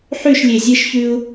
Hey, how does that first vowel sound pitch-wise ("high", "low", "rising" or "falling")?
falling